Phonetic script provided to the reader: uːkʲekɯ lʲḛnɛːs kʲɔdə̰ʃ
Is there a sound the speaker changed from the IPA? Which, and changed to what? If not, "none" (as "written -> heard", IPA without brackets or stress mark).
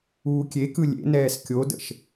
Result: ɔ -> o